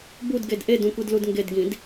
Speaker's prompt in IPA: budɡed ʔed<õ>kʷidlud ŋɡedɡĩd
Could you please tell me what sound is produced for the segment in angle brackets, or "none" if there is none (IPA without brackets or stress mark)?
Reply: ũ